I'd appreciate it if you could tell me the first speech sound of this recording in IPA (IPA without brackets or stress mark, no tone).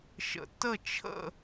ʃ